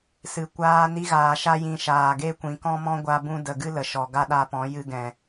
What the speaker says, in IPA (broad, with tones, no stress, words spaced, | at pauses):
sɨ˨kʷaː˧ ni˧ɣaː˨ʃa˧jĩ˨ ʃaː˨ɡe˦ kʷĩ˨kɔ̃˦mɔ̃˦ ɡʷa˧bũ˧də˨ ɡɨ˦lə˨ʃɔ˨ ɡa˦ɗa˧pɔ̃˨˦ jɨ˧ɡɛ̃˨